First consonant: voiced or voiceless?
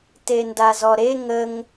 voiceless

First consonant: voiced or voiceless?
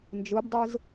voiced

